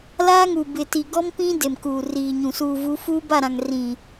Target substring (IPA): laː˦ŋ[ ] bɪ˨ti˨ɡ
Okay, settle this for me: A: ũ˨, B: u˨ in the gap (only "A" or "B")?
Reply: B